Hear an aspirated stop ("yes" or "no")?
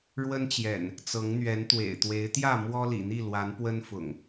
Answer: no